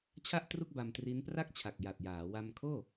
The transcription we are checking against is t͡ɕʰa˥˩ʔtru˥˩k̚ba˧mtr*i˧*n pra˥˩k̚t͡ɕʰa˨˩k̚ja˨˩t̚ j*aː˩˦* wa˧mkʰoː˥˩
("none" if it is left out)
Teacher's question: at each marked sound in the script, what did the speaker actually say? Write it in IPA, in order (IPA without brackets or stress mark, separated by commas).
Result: i˦˥, aː˩˦